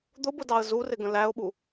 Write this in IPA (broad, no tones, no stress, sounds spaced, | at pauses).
d̪ ʊ b ʊ d ɑ ə̯ z u r ɪ ɡ ə̃ l æ ʊ̯ ɓ u